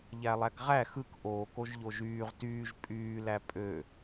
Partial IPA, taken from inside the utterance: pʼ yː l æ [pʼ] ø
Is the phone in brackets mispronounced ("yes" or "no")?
no